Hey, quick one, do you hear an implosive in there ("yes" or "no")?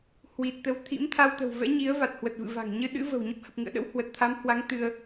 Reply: yes